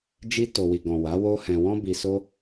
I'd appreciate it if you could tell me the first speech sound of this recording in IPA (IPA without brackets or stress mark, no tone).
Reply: d͡ʒ